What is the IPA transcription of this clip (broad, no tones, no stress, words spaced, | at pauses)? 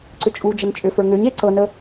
ǀʏt͡ʃʼud͡ʒən t͡ʃʼʏfə˞ ŋʏɲ eǀɤnə